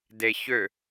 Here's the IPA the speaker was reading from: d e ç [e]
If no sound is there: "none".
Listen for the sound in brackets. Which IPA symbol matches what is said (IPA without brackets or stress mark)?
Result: ø